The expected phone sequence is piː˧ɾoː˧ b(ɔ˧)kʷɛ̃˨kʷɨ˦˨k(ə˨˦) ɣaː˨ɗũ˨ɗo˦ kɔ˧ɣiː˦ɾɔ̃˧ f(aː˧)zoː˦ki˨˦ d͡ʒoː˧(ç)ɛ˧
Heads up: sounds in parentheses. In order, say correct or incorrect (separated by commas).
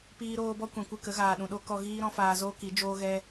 incorrect, correct, correct, incorrect